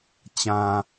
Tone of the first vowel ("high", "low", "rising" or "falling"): low